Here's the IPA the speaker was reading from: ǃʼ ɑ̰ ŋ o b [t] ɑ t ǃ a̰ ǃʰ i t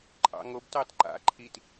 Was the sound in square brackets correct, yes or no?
yes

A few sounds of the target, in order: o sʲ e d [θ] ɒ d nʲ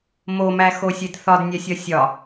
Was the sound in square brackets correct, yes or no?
yes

